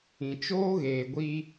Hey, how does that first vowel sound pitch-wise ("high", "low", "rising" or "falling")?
low